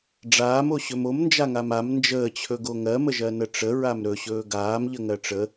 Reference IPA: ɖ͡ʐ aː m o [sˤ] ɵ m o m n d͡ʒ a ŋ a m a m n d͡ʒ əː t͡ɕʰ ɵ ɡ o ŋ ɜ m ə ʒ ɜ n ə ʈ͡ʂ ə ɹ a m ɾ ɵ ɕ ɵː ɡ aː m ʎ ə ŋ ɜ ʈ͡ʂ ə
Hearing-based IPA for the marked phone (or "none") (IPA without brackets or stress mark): ɕ